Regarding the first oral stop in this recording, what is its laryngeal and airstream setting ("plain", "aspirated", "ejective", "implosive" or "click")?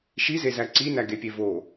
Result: click